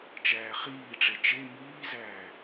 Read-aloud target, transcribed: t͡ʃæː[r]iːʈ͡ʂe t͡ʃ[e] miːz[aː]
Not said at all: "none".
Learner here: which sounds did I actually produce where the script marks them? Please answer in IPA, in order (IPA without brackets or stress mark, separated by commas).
χ, e, æː